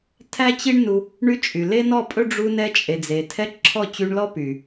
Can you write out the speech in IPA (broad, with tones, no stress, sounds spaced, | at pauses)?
tʰ æ˦ t͡ɕ i˦ ɳ n u˧ | ɳ y˦ t͡ʃʼ y˨ l e˦ n ɔ˦˨ pʼ ɵ˦ ɖ͡ʐ u˧ n ɛ˧ t͡ʃʼ e˨ d͡z e˨ tʰ ɛ˦ ǁʰ ɔ˦˨ t͡ɕ y˧ ɳ l ɔ˦ p y˨